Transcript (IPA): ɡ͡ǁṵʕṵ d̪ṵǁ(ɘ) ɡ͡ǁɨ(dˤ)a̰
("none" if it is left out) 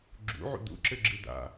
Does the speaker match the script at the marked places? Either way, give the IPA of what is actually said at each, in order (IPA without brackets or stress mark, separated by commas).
ɘ, d̪